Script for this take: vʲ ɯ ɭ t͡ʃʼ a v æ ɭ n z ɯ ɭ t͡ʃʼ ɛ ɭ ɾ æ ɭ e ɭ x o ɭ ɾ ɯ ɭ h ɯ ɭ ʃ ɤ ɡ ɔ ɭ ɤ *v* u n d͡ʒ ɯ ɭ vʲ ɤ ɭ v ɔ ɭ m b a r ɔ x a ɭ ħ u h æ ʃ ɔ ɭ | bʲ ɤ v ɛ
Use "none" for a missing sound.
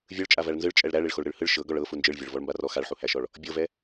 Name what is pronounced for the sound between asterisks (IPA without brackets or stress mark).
f